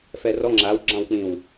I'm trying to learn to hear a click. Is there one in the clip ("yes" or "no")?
yes